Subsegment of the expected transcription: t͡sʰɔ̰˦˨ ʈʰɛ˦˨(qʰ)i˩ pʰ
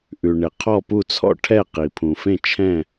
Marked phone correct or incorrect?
incorrect